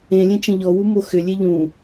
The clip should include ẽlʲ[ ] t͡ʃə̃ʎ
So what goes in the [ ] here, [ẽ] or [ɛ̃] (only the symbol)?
ẽ